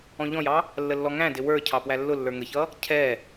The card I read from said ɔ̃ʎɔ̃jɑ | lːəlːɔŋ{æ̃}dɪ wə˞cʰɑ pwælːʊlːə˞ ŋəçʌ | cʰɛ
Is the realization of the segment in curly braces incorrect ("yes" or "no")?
no